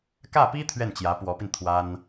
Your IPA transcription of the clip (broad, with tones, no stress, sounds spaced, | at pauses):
k ä˥˩ p i˥ t̪ʰ ɥ ɛ˥˩ n t͡ɕ j ä˧˥ p w ɔ˧˥ p i˧ n t̪ʰ w a˥ n